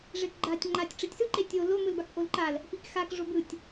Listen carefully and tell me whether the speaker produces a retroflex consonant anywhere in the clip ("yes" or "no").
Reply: yes